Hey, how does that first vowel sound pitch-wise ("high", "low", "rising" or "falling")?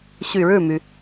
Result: low